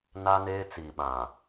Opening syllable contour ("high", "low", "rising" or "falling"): high